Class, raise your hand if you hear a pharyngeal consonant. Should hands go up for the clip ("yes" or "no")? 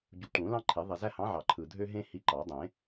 yes